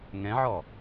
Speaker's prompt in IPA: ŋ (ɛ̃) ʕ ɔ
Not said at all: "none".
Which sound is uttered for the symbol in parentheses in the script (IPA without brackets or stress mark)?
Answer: ɛ̃